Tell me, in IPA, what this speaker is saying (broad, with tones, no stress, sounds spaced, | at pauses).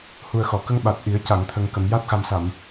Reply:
h u˨˩ ə̯ x ɔ˨˩˨ k ə˧ ŋ ɓ a˨˩ t̚ ʔ i˨˩˦ ə̯ c a˨˩˨ ŋ t̪ʰ ə˨˩ ŋ k ə˨˩˨ m j a˦˥ t̚ x a˨˩ m s a˨˩˨ m